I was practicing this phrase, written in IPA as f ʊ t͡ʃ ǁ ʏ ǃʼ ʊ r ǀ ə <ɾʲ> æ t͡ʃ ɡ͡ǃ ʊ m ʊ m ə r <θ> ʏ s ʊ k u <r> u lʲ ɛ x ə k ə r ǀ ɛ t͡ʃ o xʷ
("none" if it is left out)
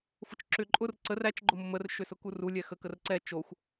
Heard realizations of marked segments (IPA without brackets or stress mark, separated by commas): r, ʃ, r